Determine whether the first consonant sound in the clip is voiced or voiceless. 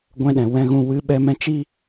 voiced